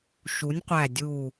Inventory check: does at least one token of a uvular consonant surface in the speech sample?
yes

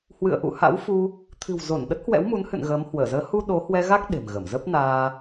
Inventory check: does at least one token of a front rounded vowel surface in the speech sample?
no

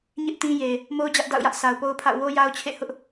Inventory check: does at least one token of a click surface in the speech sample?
no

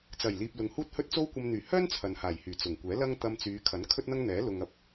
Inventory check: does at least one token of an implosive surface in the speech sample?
no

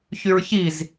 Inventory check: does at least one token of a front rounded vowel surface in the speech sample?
yes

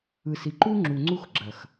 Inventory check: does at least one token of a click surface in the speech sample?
yes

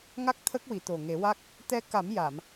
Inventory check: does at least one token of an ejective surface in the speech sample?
no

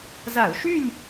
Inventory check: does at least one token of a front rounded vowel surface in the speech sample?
yes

